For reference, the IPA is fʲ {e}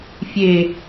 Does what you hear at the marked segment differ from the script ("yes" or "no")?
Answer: no